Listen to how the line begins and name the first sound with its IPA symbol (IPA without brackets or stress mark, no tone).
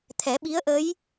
t̪ʰ